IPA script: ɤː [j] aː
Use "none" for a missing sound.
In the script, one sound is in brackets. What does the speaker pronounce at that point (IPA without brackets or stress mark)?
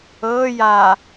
j